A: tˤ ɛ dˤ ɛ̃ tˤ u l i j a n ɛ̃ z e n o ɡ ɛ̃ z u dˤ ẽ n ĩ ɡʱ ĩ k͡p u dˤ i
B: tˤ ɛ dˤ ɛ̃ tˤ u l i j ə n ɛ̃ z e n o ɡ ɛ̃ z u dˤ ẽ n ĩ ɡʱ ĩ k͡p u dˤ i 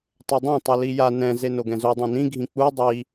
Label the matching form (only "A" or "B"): A